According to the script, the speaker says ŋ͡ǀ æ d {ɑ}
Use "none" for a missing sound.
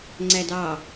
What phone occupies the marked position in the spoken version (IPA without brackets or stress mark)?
ɑ